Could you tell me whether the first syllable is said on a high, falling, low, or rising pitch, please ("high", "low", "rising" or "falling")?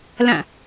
falling